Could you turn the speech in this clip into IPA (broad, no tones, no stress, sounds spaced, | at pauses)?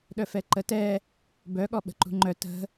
ɗ œ f ɛ ǃ ə t ɛ | b œ ɠ ɔ ɓ ə̤ ǃ ṳ ŋ͡ǃ œ t ə̤